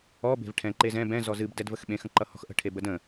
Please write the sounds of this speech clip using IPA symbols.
ɔ b e̤ v ʈʰ ɛ̃ ǃ e z ɛ̃ b ɛ̃ z ɔ z ɨ b d ɛ d v ə x ɓ ẽ x ə̃ ǃ ʌ h ɔ̤ x ʔ ə̤ ʈʰ e b ə d ə̃

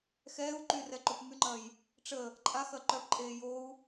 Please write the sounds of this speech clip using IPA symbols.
x ɛː u̯ ǃ y r ɛ ǃ o p m y ŋ͡ǃ ɐː j | ʈ͡ʂ ə | ǃʼ a x ɐ ǃ œ p ǃʼ eː j o u̯

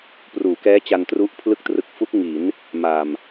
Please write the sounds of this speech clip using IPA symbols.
p r uː˩˦ k ɛː˦˥ t͡ɕ a˧ n t r u˦˥ ʔ pʰ l ɯ˦˥ k̚ t r ɯ˨˩ k̚ f u˦˥ k̚ ŋ i˩˦ n | m a˨˩ m

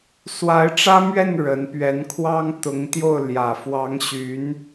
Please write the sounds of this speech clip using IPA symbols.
s w a˧˥ ɪ̯ ʈ͡ʂ ä˥ m ɥ ɛ˥˩ n ɻ ə˧˥ n p ɥ ɛ˧˥ n kʰ w ɑ˥ ŋ t̪ ʊ˧˥ ŋ t̪ j o˥˩ ʊ̯ l j ä˨˩ f w ɑ˧˥ ŋ ɕ y˧˥ n

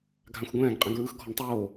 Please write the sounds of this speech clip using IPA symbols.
ɡʱ ã xʷ ɡʷ ɛ̃ː ɡ qʼ ɛ̃ ɡ ɹ ɯ x ɡʱ ɔ ɳ tˤ oː

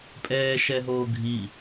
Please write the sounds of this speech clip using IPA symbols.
pʼ ɛː ʃ ɛ ɦ oː ɡʱ i

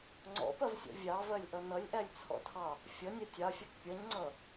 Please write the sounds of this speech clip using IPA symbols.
ŋ͡ǀ ɔ̰ p ɜ v sʲ ɔ̰ vʲ ɑ v ɜ lʲ ʔ ʌ n ʌ lʲ ʔ æ lʲ t͡sʰ ɔ̰ tʰ ɑ | fʲ ʌ nʲ æ tʲ ɑ fʲ ʌ k pʲ ʌ ɲ ŋ͡ǀ ʌ

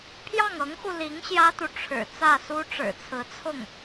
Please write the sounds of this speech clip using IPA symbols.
pʰ j ɑ˥˩ ŋ ɤ˧˥ ŋ x u˧ l i˧˥ ŋ ɕ j ä˥ t̪ u˨ ʈ͡ʂʰ ɻ̩˨˩ t͡s ä˥˩ s u˥ ʈ͡ʂ ɻ̩˨˩ t͡sʰ ɹ̩˧˥ t͡sʰ ʊ˥˩ ŋ

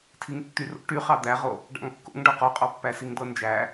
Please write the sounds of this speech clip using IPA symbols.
tʰ i ŋ tː y r o̰ ʈ y χ ɑ d̪ æ ʁ o | ɖ ɑ̰ ŋ kː o̰ ŋ ɖ ɔ q ɔ qʼ ɑ pː æ s i ŋ d̪ ɤ n d͡ʒ æ

